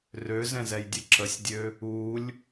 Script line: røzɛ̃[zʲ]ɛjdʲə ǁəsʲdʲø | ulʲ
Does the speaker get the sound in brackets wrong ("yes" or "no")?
yes